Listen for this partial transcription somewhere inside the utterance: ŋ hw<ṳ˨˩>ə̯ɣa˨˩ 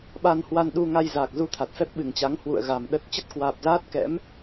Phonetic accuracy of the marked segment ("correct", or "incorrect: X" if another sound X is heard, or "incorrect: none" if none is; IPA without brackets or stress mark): incorrect: ṵ˧˨